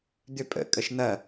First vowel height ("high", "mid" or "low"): high